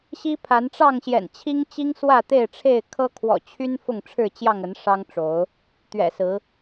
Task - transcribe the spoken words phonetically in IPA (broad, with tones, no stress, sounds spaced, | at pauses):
ɕ i˦ pʰ a˨˦ n ʈ͡ʂ ɑ˥˨ ŋ ɕ j ɛ̰˨˩ n t͡ɕʰ i˦ ŋ t͡ɕ i˦ ŋ s w ä˥˨ t̪ e˥˨ ɪ̯ ʈ͡ʂʰ e˥˨ ɪ̯ kʰ ɤ˦ kʰ w ɔ̰˨˩ t͡ɕʰ y˦ n f ʊ˥˨ ŋ ʈ͡ʂʰ ɻ̩˥˨ t͡ɕ j ɑ˥˨ ŋ ə˨˦ n ʂ ɑ˦ ŋ ʈ͡ʂ o˨˦ ʊ̯ | t̪ ɥ ɛ̰˨˩ s ɹ̩˨˦